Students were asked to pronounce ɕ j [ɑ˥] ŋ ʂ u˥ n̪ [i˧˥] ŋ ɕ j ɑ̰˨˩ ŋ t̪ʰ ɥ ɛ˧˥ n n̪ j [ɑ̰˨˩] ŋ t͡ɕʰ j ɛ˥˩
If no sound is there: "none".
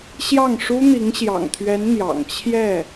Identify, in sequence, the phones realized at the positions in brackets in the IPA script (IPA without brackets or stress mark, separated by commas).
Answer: ɑ˥˩, i˧˥, ɑ̰˨˩